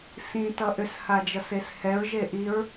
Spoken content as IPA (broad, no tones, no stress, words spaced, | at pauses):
sĩ tʌʔʏshad͡ʒʌs eshɛɹ ʒeʔiɹ